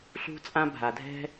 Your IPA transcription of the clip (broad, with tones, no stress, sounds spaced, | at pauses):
ɬ ṳ˥ t͡sʼ ã˥ bʱ a˩ dʱ ɛ̤˥